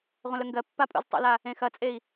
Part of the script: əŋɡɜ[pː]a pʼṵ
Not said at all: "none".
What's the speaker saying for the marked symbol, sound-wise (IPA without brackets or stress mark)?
pː